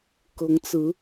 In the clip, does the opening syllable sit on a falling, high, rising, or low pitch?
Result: rising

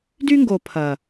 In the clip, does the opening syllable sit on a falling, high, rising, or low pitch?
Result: high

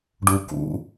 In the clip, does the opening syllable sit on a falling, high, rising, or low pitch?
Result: low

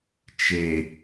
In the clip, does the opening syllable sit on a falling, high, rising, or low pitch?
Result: low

